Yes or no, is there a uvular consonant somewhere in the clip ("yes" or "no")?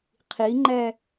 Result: yes